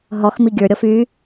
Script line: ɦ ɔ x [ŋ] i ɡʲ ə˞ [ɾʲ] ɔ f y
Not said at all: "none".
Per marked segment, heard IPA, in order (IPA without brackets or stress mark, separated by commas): m, ɾʲ